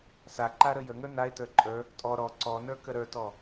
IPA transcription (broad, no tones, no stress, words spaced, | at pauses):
sa ǃaɾəjəŋə˞ nae̯tə˞ ǃʼə˞ | tʼɔ ɾɔ ǀɔnə˞ kəɾə˞tɔ